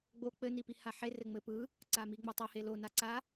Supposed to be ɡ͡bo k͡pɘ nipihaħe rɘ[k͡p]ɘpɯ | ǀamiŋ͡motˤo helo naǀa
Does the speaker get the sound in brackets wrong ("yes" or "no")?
yes